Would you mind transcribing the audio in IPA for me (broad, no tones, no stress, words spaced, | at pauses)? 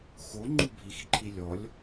xo ŋ͡ǃubʱixǃʰi lʲɔlʲ